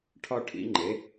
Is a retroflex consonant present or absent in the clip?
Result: present